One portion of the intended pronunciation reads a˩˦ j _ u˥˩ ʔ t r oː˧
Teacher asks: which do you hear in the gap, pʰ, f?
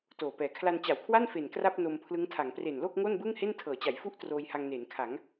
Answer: f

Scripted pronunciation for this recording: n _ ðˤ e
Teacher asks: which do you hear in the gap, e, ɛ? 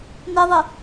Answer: e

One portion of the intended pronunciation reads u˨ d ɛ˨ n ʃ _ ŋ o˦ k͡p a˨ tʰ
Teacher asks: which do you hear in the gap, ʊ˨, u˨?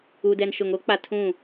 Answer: ʊ˨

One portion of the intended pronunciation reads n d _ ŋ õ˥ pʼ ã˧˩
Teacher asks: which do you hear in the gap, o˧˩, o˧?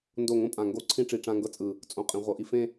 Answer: o˧˩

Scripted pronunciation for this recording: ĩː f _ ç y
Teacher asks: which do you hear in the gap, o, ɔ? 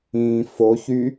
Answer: o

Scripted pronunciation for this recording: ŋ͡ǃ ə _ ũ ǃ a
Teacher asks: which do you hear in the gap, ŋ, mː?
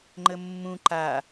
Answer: mː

